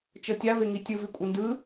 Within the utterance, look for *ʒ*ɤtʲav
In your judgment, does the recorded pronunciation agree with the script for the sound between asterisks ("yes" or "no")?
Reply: no